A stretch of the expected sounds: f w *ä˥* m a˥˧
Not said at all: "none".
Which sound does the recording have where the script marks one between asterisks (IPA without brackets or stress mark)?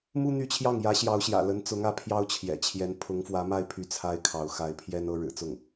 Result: ä˧˥